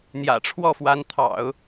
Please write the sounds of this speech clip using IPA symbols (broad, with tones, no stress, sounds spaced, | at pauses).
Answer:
n̪ j ä̰˨˩ ʈ͡ʂʰ w ɔ˥˩ f w a˧˥ n t̪ʰ ɑ̰˨˩˦ ʊ̯